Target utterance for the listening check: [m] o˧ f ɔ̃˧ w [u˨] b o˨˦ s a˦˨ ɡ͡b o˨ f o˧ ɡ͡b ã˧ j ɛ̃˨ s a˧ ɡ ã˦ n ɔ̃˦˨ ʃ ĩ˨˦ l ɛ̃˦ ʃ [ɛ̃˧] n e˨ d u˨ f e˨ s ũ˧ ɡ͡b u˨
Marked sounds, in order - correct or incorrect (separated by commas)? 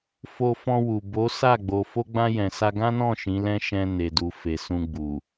incorrect, correct, correct